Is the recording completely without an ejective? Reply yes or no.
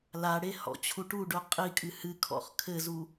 no